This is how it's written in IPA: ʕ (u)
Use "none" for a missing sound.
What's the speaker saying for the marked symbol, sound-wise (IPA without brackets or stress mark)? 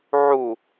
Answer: u